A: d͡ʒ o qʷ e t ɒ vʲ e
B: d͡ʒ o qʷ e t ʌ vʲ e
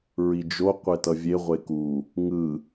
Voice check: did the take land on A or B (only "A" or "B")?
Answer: B